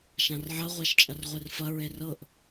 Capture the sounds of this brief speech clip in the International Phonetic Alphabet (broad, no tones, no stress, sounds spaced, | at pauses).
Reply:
ʃ ã r ʕ ɐ ʁʷ a ʃ t͡ʃʼ ɐ r ʁʷ e r f ɐ ɹ e r ɤ ʔ